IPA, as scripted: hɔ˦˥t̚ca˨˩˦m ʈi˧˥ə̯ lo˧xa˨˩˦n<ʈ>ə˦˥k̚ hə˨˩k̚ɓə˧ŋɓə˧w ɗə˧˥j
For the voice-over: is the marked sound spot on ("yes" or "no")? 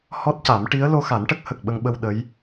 yes